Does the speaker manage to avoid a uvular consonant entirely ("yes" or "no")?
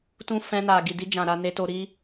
yes